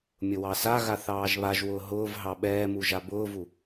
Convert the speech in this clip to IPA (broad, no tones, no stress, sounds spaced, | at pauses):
mʲ ʊ w ɑ s a ɣ a θ ɑː ʒ β a ʒ w ʊː ɦ ʊː v ɦ ɑ ɓ ɛː m u ʒ a b ʊː v u